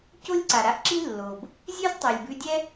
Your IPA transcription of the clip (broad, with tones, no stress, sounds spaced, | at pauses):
c o˥ lʲ ǀ a˩ ɾ a˥ ʔ ǁ i˥ lː o˩ b | zʲ ʉ˥ z tˤ u˩ lʲ b ʉ˧ dʲ ɛ˥